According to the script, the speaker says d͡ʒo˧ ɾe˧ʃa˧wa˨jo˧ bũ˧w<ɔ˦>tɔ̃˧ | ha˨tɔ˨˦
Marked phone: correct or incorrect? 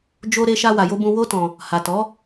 incorrect: o˦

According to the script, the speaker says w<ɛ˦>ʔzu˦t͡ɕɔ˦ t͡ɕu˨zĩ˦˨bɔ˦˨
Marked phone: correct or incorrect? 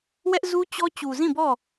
correct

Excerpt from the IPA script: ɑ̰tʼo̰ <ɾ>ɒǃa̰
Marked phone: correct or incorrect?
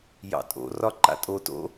incorrect: r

